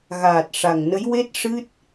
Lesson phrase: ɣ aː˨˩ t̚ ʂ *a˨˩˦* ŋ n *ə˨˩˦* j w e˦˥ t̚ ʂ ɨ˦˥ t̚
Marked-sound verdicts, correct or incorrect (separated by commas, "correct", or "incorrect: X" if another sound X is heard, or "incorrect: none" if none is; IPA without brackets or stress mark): incorrect: a˨˩, incorrect: ə˧˥